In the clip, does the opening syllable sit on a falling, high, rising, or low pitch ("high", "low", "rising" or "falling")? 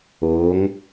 rising